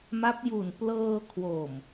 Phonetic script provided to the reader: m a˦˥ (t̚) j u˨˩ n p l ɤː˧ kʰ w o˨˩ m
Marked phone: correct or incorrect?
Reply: incorrect: p̚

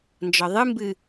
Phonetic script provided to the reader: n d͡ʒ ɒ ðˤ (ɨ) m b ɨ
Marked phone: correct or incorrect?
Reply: correct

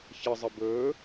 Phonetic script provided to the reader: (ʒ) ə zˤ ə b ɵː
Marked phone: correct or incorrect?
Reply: incorrect: ç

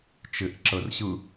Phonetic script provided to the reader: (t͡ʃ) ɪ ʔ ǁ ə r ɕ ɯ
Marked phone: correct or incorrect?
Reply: correct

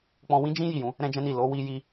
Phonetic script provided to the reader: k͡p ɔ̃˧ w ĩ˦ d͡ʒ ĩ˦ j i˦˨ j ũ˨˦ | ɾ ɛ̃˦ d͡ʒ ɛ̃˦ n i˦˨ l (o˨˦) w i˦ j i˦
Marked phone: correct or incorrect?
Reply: correct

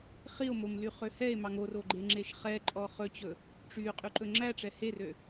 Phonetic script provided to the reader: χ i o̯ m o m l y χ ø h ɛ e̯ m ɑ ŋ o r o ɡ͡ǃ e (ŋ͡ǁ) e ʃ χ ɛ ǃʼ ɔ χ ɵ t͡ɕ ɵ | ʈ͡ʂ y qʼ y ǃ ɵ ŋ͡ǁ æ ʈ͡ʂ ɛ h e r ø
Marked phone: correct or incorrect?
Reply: correct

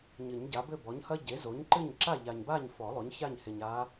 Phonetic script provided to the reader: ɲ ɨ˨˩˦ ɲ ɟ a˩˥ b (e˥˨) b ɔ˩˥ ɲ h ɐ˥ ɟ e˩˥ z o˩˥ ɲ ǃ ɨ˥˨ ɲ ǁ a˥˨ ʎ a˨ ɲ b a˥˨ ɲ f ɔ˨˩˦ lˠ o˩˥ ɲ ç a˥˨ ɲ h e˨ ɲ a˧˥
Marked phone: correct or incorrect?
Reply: incorrect: ɘ˥˨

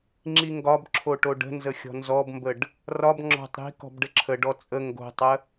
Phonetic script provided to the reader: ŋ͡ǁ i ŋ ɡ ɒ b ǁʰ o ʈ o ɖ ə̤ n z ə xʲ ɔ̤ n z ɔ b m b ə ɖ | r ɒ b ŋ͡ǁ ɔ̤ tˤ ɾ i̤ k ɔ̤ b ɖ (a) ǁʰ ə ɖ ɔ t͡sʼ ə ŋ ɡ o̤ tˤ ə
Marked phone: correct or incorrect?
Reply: incorrect: ə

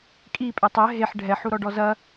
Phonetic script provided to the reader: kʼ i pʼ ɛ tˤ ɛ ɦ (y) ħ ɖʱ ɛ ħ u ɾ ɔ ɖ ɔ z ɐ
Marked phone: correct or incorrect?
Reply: incorrect: e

